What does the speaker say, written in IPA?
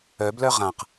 œ b l œ ʁ ã q

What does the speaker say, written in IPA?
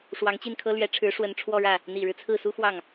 ʂ w ɑ˧˥ ŋ t͡ɕ i˥˩ n kʰ ɤ˥ l ɥ ɛ˧˥ ʈ͡ʂʰ ɻ̩˧˥ ʂ w ə˧˥ n ʈ͡ʂʰ w ɔ˥˧ ɻ ä˥˩ | n̪ i˨˩ ɻ ɻ̩˦ t͡sʰ ɹ̩˥˩ s u˥ x w ɑ˥˩ ŋ

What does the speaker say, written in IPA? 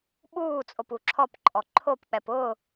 ɓ uː t͡sʼ o p u ǁʰ ɔ p ǃʼ ɔ ǃʰ o p k͡p ɛ p ʊː

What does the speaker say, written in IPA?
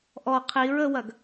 ʔ ɔ qʰ i ɹ ə w ɐ ɡ

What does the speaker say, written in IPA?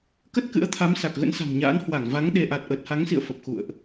k ə˦˥ t̚ k ɨ̰˧˥ ə̯ t̪ʰ a˨˦ m s a˨˩ k̚ ɣ ə̰˧˥ n s a̤˨˩ ŋ ɲ a̰ː˧˥ n h w a˧˩ ŋ v a˨˦ ŋ ɗ e˧ ʔ a˨˩ t̚ ʔ əː˨˩ t̚ h a˨˦ ŋ s ḭ˧˨ ə̯ f ə˨˩ p̚ x ṵ˧˨ ə̯ ʔ

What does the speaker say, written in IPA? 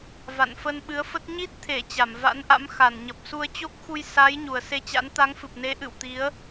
v a̰˧˨ n f ə˧ n ɓ ɨ˨˦ ə̯ f ə˦˥ t̚ ɲ i˦˥ t̚ t̪ʰ e˧˩ t͡ɕ a˧˩ m v a̰˧˥ n ʔ a̰˧˥ m x a˧˩ n ɲ ə˨˩ p̚ s u˧ ə̯ t͡ɕ o˦˥ k̚ x u˧ j s a˨˦ j ɲ u˨˩ ə̯ s e˧ t͡ɕ a̰˧˥ n t̪ a˨˦ ŋ f ɨ˨˩ p̚ n e˨˦ ʔ ɨ̰˧˨ w t̪ i˨˦ ə̯

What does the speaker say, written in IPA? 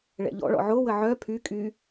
ɭ ɛ̰ ʎ ɔ̰ ɭ ɔ̰ ʕ o w ə ʕ œ pʰ y kʼ y

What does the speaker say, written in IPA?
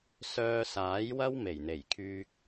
s œː˧ s aː˨˥ j w ɐ˥ w m e˨˩ j n̪ e˨˩ j kʰ yː˧ k̚

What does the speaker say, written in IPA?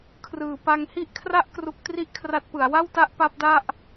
kʰ r ɯː˨˩ p a˧ ŋ h i˥˩ ʔ kʰ r a˥˩ ʔ k r u˦˥ k̚ t r i˥˩ ʔ kʰ r a˦˥ t̚ p ɯ˩˦ a̯ w a˥˩ w t a˦˥ ʔ p a˦˥ p̚ d a˥˩ ʔ

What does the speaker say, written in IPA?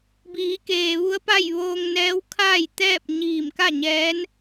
b iː˩˧ k eː˩ ʋ u˧˥ ə̯ p a˥˨ j ʋ oː˧ ŋ n ɛː˧˥ w kʰ aː˥˨ j t̪ ɛː˥˨ p̚ ɲ iː˧˩ m k a˥˨ ɲ ɛː˧˥ n

